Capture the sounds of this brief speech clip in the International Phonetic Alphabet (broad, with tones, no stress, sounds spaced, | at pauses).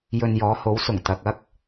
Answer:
j ɵ˧ n j ɔː˨˥ h o˨˥ w s ʊ˨˩ ŋ t̪ ɐ˨ k̚ ɐ˥ k̚